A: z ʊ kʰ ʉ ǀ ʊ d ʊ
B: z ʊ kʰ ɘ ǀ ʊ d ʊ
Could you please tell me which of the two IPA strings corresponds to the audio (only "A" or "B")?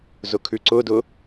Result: A